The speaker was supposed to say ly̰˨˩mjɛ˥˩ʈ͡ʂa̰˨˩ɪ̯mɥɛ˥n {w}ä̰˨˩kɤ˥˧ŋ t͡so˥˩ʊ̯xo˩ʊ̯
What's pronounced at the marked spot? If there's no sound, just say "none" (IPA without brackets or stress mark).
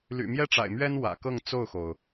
w